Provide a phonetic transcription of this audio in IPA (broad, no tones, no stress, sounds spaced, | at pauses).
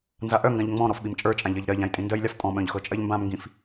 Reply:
n z a ʔ œ ŋ ɡ ã ʎ ŋ͡m ɔ̃ ɾ ɔ f ɓ i m t͡ʃʼ ə˞ t͡ʃʼ ã ʎ ɜ ʎ ɾ ɜ ʎ ã j tʼ ĩ n d ɜ j lʲ a f tʼ ɔ̃ ɓ œ̃ ʎ x ɤ t͡ʃʼ ɜ ʎ m b ã m ŋ ɡ ĩ f